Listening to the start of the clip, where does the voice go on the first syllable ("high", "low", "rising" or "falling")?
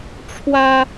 high